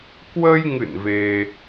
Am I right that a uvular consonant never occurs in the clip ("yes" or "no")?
yes